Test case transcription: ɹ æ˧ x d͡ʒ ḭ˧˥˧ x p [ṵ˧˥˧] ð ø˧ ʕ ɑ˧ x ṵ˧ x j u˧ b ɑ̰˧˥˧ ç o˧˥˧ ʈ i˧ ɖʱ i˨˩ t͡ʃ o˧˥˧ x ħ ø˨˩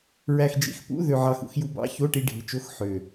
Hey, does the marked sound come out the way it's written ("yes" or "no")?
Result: yes